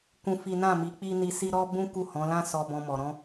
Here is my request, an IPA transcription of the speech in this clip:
kũ˦fi˦ nã˦˨mi˨˦ k͡pi˦ni˧si˦ ɾɔ˦ bũ˦ ku˦˨hɔ̃˨˦lã˦ sɔ˧bɔ̃˧mɔ˨ ɾɔ̃˧

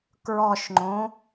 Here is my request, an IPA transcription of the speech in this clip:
kɹɔʃŋ͡ǃõ

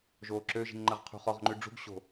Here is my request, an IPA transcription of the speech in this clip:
ʒoːǁøʒi̤ŋ ŋ͡ǃɜʁqʰṳχɔʁŋ͡ǃʉ ɖ͡ʐṳɡɕo̤

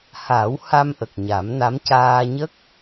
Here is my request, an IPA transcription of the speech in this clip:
ha˨˩˦wha˧m ʔə˨˩k̚ɲa˨˩˦mna˧˥m caː˧ɲə˦˥k̚

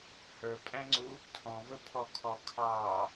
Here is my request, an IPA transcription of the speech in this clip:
hə˞pʼæ̃ŋ͡ǀu | tʰɔ̃vəpʰɔ kʰɔkʰɑ

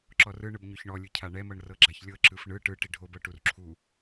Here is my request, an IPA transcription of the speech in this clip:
ǁɔrɯɳɯb ɲoçɳɔlʲɯ cʰaɳɛmɤɳ rɤɡ͡ǁaçlʲɤ ǁɯfɳɯ ʈɯ ʈiɖʱobɤ ʈurǁʰu

